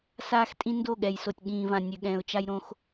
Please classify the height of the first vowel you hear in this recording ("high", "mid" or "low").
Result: low